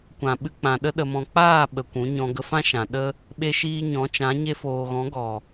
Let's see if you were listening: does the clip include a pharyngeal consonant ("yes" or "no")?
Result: no